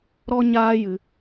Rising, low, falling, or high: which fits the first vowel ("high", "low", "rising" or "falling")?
high